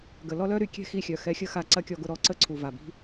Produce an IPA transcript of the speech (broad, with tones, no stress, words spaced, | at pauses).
ɡə˨lɔ˦lœ˦ ɾy˧kʲɛ̤˦xi˧xʲœ˨ xɛ˧xʲə˦xa˧ ǀɐ˦kʲɔ˧ɡʊ˦˨ ɾɔ˦ǀə˦˨ǀʰu˨ va˨bi̤˦